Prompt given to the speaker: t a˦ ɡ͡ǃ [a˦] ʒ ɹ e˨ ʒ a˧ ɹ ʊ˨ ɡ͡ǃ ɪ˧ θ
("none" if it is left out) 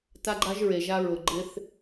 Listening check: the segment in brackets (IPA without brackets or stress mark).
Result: a˦